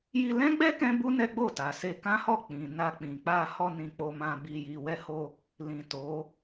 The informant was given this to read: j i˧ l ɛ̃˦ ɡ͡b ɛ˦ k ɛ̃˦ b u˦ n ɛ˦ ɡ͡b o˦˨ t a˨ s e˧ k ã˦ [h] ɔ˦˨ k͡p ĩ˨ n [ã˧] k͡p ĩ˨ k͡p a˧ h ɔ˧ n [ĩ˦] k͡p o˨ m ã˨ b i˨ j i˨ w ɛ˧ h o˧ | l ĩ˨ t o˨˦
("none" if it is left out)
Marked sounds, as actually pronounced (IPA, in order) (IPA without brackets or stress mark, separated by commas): h, a˧, ĩ˨